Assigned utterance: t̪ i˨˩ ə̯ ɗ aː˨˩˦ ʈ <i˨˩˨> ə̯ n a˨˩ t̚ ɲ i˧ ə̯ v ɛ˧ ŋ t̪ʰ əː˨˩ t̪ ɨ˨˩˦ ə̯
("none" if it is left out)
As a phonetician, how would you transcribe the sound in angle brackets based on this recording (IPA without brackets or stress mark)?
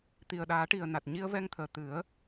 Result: i˨˩